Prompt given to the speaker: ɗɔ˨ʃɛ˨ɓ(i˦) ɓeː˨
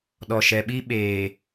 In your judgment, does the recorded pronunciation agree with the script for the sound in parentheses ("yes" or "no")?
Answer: yes